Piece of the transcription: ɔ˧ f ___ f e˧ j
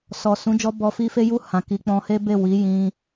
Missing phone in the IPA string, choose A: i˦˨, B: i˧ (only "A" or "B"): B